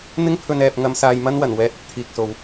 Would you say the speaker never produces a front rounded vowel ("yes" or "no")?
yes